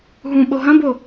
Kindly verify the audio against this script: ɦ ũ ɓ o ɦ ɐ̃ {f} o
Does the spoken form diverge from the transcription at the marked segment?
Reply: yes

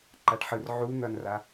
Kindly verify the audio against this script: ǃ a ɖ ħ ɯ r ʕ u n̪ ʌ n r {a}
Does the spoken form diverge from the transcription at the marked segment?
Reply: no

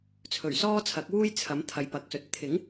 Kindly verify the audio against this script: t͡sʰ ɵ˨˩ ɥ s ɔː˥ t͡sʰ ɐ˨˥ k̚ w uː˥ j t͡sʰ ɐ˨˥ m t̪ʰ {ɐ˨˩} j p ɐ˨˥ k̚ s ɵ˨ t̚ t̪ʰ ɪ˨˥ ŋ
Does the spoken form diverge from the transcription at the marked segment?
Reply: yes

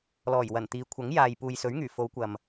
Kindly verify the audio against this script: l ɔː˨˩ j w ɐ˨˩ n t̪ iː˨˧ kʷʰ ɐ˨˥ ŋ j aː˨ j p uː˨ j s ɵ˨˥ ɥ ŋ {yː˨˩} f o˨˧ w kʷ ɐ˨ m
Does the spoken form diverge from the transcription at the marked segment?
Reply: no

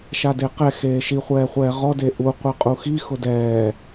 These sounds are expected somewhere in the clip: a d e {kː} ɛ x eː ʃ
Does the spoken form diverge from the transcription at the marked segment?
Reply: yes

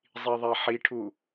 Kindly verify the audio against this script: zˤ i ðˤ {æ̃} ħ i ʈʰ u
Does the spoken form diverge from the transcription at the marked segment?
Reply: yes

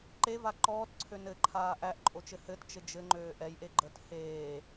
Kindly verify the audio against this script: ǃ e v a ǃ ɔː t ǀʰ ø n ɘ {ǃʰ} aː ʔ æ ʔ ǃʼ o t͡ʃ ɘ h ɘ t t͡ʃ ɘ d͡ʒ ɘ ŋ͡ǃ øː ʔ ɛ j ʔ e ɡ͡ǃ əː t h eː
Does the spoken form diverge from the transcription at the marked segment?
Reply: no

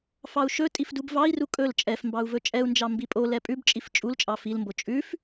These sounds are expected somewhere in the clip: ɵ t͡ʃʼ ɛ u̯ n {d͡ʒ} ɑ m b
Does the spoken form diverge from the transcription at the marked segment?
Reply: no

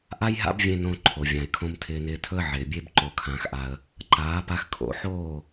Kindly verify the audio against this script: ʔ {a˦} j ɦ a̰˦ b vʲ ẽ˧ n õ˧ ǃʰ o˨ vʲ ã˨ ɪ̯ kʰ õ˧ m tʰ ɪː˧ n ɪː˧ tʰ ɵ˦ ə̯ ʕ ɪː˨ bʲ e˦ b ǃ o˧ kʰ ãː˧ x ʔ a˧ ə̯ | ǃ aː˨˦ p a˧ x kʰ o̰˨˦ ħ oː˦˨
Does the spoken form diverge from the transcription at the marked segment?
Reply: no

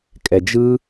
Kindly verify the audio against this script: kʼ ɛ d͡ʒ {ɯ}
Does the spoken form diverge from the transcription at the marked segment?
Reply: no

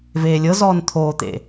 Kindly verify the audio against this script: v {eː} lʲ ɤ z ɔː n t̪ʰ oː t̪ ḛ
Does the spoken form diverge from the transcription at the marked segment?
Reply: no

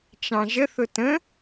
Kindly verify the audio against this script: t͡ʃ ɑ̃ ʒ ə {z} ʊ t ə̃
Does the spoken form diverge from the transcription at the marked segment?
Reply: yes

